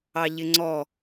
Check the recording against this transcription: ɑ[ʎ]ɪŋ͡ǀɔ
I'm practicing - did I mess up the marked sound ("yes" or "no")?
no